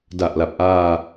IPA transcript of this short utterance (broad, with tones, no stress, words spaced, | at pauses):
da˨˩ʔla˨˩p̚ʔaː˧